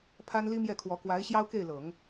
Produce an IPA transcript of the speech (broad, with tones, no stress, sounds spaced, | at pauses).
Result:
pʰ a˥ n l i˥ m j ɛ˥˩ kʰ w ɔ˧˥ k w a˧˥ ɪ̯ ɕ j ɑ˥ ʊ̯ k e˥˩ ɪ̯ l ɤ˨˩˦ ŋ